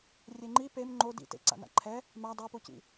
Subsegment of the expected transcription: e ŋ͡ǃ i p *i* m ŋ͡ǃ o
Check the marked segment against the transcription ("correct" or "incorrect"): incorrect